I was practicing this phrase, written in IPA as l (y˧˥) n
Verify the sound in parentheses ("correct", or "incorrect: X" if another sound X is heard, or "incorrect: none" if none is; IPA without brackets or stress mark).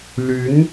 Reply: correct